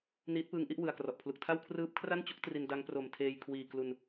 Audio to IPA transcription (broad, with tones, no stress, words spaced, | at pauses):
niː˦˥t̚pɯː˦˥ŋʔi˥˩ʔ wɯ˨˩a̯krɔ˨˩ʔpʰlu˨˩k̚tʰa˥˩w kʰrɯː˦˥p̚kʰra˥˩nt͡ɕu˦˥k̚ tri˧nda˦˥ŋpro˨˩m tʰeː˧j kʰwiː˨˩klu˧n